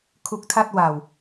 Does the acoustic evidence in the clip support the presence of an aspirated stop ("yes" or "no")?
yes